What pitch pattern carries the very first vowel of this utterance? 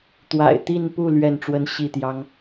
low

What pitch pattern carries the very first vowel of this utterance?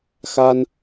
high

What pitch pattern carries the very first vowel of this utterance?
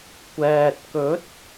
low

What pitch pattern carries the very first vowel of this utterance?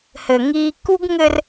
low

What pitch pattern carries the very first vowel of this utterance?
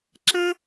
high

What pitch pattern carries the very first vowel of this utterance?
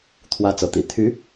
high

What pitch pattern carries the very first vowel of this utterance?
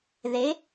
rising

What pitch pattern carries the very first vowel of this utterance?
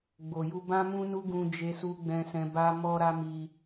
low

